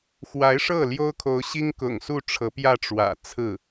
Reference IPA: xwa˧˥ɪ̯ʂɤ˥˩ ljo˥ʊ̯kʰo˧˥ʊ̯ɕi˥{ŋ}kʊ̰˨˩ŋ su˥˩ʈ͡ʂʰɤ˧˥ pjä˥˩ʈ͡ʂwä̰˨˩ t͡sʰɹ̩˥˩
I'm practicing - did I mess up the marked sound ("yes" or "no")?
no